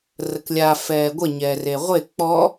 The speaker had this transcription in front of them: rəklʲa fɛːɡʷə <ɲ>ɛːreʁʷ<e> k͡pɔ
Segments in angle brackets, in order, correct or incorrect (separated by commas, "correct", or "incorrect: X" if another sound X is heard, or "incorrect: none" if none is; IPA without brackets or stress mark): correct, correct